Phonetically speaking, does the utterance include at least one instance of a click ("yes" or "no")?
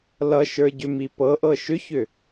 no